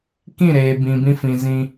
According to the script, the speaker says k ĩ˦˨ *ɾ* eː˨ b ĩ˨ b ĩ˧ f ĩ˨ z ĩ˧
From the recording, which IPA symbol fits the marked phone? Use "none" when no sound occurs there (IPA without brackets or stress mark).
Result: ɾ